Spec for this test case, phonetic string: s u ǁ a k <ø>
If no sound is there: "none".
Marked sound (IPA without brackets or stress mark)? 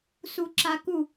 u